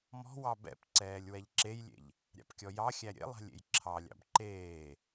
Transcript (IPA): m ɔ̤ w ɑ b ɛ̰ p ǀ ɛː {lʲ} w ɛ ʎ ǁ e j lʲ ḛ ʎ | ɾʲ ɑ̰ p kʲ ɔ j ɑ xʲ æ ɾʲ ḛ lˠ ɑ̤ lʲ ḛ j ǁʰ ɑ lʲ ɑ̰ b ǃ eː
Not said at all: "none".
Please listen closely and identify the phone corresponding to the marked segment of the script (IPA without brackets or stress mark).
lʲ